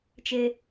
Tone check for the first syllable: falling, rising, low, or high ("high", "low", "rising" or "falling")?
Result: high